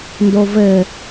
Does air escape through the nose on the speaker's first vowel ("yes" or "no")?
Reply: no